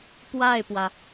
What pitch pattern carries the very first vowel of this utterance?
falling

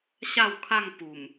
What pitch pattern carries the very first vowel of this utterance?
falling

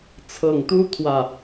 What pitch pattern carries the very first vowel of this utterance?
low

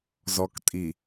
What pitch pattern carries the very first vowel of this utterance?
low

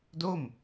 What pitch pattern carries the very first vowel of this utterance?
falling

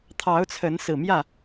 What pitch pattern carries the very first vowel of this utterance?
rising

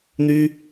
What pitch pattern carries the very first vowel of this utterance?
high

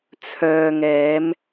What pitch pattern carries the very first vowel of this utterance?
low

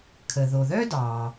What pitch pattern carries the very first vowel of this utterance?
low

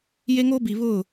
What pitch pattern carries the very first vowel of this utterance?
high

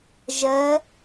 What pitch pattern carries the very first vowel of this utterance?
rising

